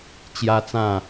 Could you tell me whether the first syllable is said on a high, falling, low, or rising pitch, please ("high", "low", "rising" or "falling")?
high